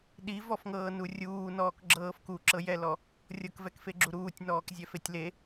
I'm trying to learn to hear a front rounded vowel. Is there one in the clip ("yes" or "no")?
no